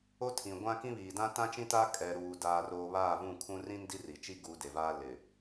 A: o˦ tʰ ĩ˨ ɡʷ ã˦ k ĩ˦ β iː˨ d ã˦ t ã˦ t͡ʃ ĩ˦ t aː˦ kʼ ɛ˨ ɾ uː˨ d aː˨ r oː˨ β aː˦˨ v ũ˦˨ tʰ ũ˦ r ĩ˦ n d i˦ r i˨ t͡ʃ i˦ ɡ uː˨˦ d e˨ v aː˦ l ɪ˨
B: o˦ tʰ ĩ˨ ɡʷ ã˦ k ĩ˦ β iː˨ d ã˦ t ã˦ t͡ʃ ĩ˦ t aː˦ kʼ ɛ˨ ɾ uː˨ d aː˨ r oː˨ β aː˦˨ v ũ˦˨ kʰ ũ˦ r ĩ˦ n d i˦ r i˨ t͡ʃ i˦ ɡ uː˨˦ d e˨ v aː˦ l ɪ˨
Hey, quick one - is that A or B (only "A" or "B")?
B